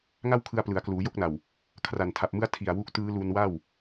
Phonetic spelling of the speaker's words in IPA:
ŋ a˥˩ w kʰ ɯ˧ a̯ p l ɯ˩˦ a̯ k l uː˩˦ j o˥˩ k̚ n a˨˩ w | kʰ r a˨˩ n tʰ a˨˩ p̚ m ɯ˦˥ a̯ tʰ i˨˩ a̯ w u˦˥ k̚ t ɯː˦˥ l u˧ n w a˥˩ w

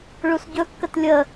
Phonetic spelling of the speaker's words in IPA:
ɭ u s ɟ ɵ kː ə t lʲ ə

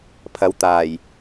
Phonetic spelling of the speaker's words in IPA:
pʰ ɐ˨˧ w t̪ aː˨˩ j

